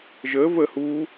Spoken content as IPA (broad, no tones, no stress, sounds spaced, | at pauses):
ʒ əː v ə h uː